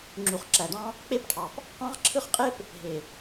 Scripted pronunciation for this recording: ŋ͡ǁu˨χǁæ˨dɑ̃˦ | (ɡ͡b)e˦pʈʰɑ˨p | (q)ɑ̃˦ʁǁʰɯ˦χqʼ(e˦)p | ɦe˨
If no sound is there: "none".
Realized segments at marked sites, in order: k͡p, q, e˦

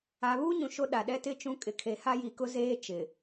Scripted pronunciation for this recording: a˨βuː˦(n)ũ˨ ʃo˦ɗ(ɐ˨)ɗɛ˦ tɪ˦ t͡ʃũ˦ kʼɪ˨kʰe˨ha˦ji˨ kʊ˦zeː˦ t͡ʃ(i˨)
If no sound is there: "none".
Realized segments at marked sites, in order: ɲ, a˨, ɪ˨

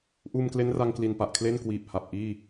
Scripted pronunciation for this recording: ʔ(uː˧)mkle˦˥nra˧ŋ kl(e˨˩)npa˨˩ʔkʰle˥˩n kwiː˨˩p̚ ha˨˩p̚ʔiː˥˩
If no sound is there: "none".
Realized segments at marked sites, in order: uː˧, i˨˩

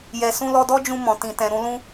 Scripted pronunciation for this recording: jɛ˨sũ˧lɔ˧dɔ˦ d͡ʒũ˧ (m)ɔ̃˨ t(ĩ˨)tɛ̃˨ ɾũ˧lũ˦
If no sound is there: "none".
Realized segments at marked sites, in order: m, ĩ˨

